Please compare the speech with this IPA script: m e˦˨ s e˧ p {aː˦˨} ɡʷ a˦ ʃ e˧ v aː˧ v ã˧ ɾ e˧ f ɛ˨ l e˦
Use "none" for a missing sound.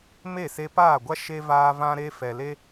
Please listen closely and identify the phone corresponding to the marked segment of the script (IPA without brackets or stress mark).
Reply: aː˦˨